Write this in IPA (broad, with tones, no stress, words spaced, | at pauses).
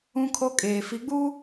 ũ˦kʰo˦ kʼeː˨fi˨˦ɡ͡bu˦